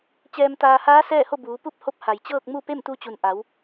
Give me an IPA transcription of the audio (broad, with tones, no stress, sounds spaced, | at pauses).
t͡ɕ ɛː˧ m t̪ aː˧ h aː˧˥ s ɛː˥˨ h o˥˨ b uː˩˧ p u˥˨ p̚ h o˧˥ p̚ h a˩ j t͡ɕ ɤː˥˨ k̚ m u˥˨ p e˥˨ m t̪ u˧ t͡ɕ u˩ n ʔ a˩˧ w